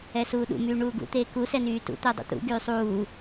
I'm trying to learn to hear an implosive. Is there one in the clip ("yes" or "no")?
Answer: yes